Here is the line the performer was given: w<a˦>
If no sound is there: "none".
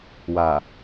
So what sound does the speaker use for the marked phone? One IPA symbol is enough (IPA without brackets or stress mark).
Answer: a˨